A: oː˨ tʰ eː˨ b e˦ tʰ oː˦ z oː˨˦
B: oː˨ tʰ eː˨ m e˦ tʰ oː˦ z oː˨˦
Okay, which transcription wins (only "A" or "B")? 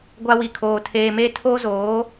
B